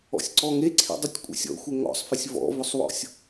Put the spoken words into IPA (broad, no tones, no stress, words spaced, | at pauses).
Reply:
ɔ̰sʲǀɔŋe ǀʰḭdˤɪtʲ kʷʼḭsʲɔ̰xʷe ŋɔ̰sˤfɪsʲ vɔ̰vʊsˤwɔ̰sʲ